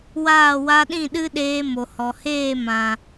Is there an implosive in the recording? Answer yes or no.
yes